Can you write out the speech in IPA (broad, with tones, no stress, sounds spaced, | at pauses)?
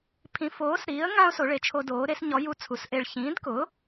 pʰ ĩ˨˥ f oː˨˥ s ɾ iː˨˥ ə̯ ŋ ã˦ ʊ̯ s o˨˥ ɭ e˨˥ t͡ʃʰ o˦ d oː˨˥ ɾ e˦ s ɲ ɔ˨˥ j u˦ t͡sʰ u˨˥ s ʔ e˦ ɭ ç ĩː˨˥ d k ʊ˨˥